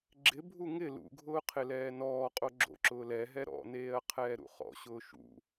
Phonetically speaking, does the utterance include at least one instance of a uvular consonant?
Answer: yes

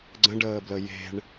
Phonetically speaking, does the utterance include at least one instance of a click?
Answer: yes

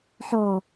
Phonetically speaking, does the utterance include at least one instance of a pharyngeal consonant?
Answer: yes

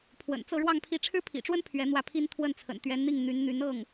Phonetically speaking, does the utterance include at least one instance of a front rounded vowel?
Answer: yes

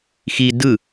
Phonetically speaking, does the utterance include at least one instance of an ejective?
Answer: no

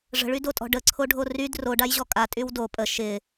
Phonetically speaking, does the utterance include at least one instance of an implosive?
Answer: no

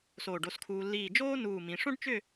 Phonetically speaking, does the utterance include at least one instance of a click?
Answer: no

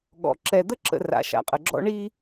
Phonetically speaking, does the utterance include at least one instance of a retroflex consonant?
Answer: yes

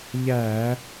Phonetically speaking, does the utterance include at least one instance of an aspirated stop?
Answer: no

